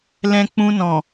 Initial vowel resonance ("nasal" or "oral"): nasal